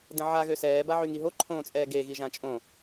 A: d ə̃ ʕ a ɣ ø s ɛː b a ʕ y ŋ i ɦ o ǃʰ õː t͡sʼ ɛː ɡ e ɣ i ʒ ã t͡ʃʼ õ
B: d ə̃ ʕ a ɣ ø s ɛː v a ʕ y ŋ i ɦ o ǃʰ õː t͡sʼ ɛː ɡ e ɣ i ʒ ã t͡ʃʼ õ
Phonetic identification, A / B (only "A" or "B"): A